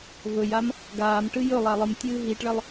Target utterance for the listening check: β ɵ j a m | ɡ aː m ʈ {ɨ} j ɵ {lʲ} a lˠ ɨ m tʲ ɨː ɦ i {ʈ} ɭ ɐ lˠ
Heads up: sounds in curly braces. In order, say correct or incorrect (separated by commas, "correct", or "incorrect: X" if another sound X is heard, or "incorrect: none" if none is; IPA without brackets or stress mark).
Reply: correct, incorrect: lˠ, correct